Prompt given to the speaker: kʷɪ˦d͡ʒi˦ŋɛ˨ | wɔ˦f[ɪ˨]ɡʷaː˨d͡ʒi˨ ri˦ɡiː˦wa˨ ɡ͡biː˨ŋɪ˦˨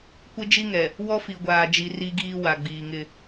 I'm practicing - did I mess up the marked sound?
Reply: yes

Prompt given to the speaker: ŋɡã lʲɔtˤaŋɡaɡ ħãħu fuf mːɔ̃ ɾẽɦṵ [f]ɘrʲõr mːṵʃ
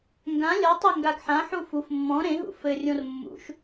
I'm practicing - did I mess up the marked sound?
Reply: no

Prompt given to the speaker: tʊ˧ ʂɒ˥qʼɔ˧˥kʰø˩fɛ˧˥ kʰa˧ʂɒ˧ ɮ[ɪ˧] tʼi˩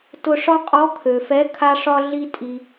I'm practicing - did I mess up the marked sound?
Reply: yes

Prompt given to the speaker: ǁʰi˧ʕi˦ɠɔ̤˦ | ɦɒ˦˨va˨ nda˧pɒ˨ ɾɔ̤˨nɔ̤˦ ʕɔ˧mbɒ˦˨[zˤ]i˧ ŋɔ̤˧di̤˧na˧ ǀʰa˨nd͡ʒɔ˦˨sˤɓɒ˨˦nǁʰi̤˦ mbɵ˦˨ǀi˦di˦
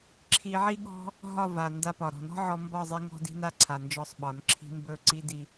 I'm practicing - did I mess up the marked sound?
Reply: no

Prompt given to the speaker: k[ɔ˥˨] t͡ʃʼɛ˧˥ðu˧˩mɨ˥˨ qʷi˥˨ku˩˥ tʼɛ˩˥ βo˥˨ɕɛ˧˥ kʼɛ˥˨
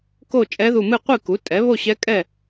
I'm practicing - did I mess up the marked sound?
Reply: yes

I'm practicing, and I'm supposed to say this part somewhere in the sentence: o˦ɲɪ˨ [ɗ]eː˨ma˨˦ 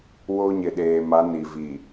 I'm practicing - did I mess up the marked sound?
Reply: no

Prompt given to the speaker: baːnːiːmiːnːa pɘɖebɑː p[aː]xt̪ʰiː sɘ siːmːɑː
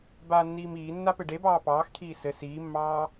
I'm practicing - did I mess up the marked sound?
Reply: yes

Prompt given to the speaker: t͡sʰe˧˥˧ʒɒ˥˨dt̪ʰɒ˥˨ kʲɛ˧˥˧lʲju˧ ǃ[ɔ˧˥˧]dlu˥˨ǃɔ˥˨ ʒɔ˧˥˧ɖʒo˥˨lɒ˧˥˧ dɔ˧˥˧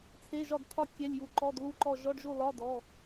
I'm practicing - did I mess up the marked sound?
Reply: no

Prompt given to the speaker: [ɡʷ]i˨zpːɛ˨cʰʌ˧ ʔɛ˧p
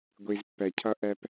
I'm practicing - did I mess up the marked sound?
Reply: no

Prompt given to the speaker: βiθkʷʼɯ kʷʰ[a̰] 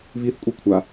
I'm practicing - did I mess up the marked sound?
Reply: yes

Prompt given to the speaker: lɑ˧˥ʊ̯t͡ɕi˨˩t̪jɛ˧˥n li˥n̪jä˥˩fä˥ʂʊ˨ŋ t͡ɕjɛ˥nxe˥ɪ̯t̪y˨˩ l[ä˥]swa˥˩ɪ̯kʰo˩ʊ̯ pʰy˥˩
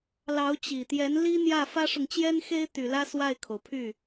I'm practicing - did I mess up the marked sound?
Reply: no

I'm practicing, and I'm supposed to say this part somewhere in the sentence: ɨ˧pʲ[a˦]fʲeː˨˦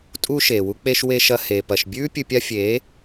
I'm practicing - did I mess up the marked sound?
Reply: no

